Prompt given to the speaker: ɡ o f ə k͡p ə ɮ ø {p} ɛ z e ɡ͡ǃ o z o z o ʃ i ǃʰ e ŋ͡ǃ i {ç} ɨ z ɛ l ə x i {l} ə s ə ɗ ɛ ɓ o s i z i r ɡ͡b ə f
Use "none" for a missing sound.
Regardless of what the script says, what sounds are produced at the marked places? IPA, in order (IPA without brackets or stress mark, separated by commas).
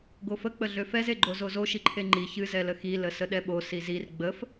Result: f, ç, l